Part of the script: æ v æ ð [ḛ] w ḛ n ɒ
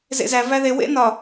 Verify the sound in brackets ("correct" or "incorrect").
incorrect